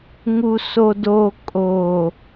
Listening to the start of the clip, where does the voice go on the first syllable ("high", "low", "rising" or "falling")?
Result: low